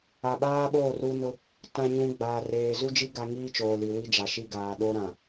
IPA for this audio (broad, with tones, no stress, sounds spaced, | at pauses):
a˨ ɓ aː˦ ɓ oː˦˨ r u˦ n ʊ˦ | t ã˦ ɲ ũ˦ ɡ͡b aː˨ r eː˨ z u˦ d͡ʒ i˦ ɡ a˦ ŋ iː˦ t͡ʃ oː˨ l i˨ w i˦ d͡ʒ a˨ ʃ i˦ ɡ aː˨ ɗ o˦ ɾ ã˨